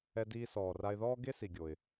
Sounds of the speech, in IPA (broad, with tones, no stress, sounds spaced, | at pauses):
ɛ˧ d iː˧ s ɔː˩ r a˧ ɪ̯ ð ɔː˥ ɡ e˥ s i˩ ɡʲ o˩ ɪ̯